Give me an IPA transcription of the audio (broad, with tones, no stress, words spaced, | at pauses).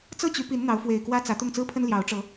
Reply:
t͡sɤ˥˨t͡ɕy˨˦pi˨˦n n̪ɑ˨˦ʊ̯fwe˨˩ɪ̯kwä˦ t͡sä˨˦t̪ʊ˥˨ŋ t͡sɹ̩˦pʰə˦n ljɑ˨˦ʊ̯ʈ͡ʂɤ˨˦